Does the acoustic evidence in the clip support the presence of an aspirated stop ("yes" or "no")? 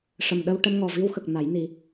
no